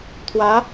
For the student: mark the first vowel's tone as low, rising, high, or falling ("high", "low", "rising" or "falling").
rising